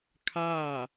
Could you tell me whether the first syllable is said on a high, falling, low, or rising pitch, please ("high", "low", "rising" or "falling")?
falling